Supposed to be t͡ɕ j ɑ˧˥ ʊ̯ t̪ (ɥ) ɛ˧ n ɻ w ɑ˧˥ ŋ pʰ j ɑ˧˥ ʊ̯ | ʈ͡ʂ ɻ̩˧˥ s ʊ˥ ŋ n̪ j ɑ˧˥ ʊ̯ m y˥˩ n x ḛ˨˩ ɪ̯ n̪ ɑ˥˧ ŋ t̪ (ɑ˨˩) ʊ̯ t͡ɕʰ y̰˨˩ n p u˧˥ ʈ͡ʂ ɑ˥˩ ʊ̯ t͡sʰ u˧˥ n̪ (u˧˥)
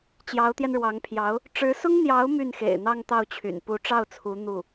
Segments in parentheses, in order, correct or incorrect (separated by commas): incorrect, incorrect, incorrect